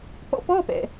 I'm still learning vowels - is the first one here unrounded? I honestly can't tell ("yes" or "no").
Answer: no